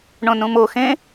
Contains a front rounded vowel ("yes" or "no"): no